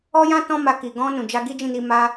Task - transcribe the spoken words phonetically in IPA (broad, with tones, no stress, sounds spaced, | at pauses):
ɔ˦ j ã˦ t ɔ̃˦ m a˧ k i˨ ɡ ɔ̃˧ n ũ˨ d͡ʒ a˧ ɡ i˦ d͡ʒ ĩ˦˨ n i˧ m a˧